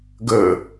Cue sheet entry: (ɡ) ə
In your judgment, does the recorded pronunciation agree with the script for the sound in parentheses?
yes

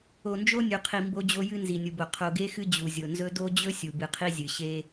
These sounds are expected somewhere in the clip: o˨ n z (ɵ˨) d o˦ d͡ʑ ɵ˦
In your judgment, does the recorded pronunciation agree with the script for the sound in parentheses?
no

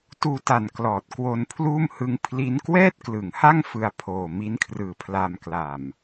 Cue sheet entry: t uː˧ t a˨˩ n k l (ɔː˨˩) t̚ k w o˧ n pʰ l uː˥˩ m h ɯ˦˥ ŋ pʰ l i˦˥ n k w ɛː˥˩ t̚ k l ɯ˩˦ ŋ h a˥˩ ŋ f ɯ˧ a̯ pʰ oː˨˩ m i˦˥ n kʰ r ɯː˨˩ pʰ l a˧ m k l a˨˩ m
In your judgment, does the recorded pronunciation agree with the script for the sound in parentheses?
yes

